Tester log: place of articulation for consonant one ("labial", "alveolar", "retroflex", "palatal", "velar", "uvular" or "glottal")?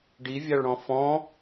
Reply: retroflex